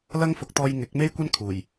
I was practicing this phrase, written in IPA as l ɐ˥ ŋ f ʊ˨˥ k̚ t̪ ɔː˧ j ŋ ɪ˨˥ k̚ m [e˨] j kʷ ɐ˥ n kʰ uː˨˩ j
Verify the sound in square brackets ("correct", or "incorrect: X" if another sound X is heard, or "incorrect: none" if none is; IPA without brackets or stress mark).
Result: incorrect: e˥